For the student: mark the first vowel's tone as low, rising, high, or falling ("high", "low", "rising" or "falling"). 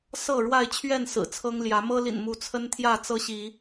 falling